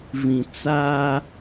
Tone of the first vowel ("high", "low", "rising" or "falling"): low